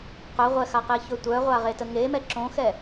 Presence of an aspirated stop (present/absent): absent